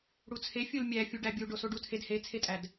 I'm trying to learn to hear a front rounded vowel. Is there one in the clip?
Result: no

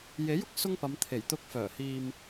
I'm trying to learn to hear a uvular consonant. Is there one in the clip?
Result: no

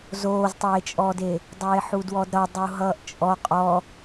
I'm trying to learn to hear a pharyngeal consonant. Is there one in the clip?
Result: yes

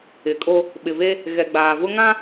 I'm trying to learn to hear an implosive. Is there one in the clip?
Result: yes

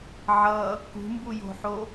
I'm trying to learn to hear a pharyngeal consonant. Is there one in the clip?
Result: yes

